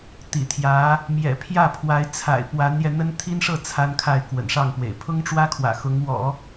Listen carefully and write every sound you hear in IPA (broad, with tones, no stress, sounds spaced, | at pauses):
t̪ ḭ˨˩ t̪ʰ j ä˧˥ | m j ɛ̰˨˩ pʰ j ä˥˩ pʰ w a˧˥ ɪ̯ t͡sʰ a̰˨˩ ɪ̯ p w a˧˥ n j ɛ˧ n̪ ə˥ n t̪ʰ i˥ n ʂ ɤ˥˩ t͡sʰ a˥ n kʰ a˥˩ ɪ̯ k w ə̰˨˩ n ʂ ɑ˥˩ ŋ p w ḛ˨˩ ɪ̯ pʰ ʊ˥ ŋ ʈ͡ʂ w ä˥ kʰ w ä̰˨˩ x ʊ˧˥ ŋ w ɔ̰˨˩˦